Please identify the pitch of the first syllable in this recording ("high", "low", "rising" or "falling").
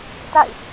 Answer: falling